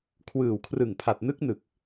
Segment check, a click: absent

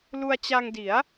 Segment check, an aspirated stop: absent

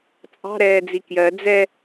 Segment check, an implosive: absent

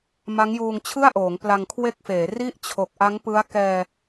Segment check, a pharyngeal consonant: absent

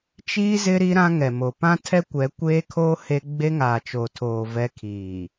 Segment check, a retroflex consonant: absent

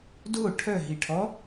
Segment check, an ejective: absent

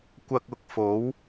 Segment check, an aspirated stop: absent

